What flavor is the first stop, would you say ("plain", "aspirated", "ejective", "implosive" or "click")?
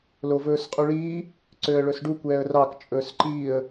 ejective